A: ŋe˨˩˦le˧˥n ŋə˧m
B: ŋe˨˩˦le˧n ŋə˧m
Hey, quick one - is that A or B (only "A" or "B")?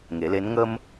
A